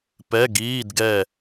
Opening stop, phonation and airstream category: plain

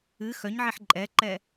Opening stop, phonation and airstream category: click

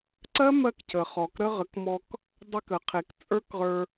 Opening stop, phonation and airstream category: click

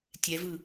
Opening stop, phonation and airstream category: plain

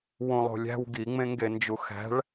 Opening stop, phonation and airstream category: plain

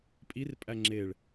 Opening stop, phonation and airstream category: ejective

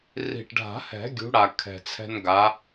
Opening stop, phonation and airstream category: plain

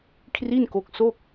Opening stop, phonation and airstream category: aspirated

